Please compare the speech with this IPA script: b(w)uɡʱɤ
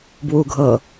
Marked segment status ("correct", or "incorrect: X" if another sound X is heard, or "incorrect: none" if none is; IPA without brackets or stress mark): correct